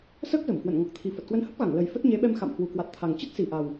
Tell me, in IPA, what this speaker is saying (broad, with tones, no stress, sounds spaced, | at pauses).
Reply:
s əː˦˥ k̚ z ə˧˩ m k w ə̰˧˨ n ŋ ɔ˨˩ k̚ t̪ʰ i˨˩ f ə˨˩ t̚ k w ə˧ n h ə˦˥ p̚ ɣ a˧˩ ŋ l ə˨˩ j f ə˦˥ t̚ ɲ e˨˦ ɓ ɛ˧ m x a̰˧˨ m h w u˨˩ k w a˨˩ t̚ t̪ʰ a˨˩ ŋ t͡ɕ ə˦˥ t̚ s i˨˩ ʔ a˨˩ w